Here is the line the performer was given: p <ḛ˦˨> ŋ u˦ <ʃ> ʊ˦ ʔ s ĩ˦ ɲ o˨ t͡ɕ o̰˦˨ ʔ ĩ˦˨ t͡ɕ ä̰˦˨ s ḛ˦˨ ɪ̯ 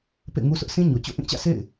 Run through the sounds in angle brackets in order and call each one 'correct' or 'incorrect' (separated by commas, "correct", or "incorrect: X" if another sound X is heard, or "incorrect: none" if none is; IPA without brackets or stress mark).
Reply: correct, incorrect: s